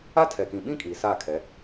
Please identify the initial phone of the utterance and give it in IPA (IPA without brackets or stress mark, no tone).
a